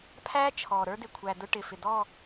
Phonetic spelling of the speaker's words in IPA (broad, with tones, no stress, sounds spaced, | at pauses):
pʰ æ˦ t͡ʃʰ ɔ˨ ɾ ə˞˦ d ɪ˨ kʷʰ æ˨ d ʊ˦ ʈ ɪ˨ f ɪ˨ d ɔ˦˨